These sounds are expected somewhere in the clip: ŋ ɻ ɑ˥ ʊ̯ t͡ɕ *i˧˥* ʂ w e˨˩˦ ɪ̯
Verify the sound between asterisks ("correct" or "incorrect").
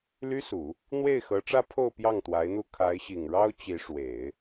correct